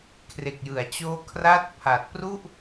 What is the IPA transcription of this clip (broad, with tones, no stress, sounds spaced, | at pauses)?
kʰ r e˨˩ k̚ j ɯ˩˦ a̯ t͡ɕ oː˧ kʰ r a˦˥ t̚ pʰ a˨˩ t̚ p r u˥˩ ʔ